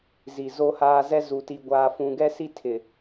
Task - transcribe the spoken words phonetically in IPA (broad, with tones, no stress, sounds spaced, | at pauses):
z i˨ z o˦ h aː˦ z ɛ˦ z u˨ t i˨ ɡʷ aː˨ f ũ˨ ɡ ɛ˦ s i˦ tʰ ɪ˨